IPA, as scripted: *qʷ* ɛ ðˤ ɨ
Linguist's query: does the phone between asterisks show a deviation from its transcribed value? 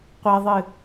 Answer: no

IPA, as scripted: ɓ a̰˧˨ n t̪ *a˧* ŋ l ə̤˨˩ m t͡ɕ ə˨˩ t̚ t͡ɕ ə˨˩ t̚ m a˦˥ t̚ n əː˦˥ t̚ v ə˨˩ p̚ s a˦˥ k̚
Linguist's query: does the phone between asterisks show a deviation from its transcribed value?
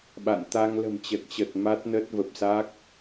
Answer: no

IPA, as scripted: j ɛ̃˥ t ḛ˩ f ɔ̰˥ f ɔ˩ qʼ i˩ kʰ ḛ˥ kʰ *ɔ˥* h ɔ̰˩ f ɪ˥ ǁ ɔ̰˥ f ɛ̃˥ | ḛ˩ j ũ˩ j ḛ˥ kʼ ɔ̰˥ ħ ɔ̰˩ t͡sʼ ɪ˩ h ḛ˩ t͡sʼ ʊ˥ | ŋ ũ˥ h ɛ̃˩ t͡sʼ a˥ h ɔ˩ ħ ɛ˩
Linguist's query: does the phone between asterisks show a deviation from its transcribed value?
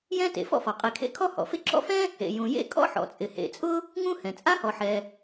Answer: no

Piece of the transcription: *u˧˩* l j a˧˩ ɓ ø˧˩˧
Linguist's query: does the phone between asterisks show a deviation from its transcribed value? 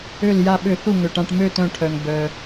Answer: yes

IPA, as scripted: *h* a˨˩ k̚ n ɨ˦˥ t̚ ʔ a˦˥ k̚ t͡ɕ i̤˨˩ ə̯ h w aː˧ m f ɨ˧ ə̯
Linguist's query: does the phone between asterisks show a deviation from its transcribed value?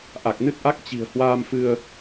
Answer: yes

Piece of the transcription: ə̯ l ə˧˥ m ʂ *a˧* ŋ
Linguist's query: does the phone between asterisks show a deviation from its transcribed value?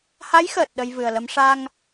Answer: no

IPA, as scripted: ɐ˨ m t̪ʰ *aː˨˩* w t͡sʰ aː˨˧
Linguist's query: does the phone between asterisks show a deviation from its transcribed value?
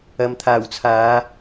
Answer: no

